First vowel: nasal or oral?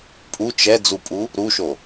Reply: oral